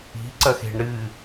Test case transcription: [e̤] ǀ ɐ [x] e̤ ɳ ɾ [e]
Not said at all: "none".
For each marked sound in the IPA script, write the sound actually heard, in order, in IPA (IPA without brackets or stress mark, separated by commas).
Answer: i̤, x, ɨ